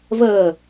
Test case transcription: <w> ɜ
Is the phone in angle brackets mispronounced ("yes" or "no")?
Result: yes